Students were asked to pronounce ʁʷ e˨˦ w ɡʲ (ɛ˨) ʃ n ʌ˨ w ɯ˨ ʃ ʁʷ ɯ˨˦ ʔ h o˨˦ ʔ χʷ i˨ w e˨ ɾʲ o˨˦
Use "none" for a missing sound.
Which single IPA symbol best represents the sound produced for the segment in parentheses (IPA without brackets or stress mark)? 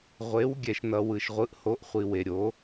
ɛ˨